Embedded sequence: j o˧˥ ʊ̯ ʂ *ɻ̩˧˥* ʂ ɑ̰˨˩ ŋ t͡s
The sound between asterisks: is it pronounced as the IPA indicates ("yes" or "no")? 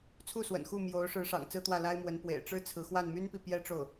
yes